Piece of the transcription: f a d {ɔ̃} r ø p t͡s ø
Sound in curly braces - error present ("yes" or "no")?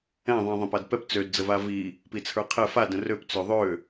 yes